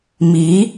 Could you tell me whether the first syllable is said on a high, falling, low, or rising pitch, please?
rising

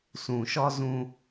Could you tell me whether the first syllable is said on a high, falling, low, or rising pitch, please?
low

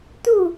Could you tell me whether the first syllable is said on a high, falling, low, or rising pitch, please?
falling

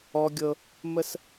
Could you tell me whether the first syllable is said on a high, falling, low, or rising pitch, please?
high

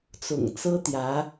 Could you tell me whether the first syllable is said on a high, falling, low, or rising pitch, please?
low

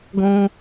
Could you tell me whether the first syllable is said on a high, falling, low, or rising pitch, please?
high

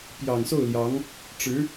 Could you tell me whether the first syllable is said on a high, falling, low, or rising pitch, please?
low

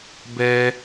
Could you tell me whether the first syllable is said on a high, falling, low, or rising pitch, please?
high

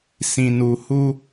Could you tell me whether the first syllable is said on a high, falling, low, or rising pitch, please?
low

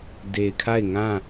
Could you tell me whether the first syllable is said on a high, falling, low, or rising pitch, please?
low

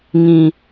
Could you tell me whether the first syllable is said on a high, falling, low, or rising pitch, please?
low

